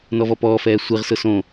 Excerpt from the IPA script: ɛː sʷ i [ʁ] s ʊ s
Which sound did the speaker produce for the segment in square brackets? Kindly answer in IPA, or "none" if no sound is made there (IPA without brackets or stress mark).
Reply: ʁ